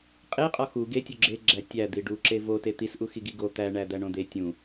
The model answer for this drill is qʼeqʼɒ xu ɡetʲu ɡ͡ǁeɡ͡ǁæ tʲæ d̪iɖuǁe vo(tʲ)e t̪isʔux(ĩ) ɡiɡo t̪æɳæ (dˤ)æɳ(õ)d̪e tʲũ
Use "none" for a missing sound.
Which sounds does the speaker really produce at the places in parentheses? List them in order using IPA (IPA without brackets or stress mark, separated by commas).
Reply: t, i, d̪, õ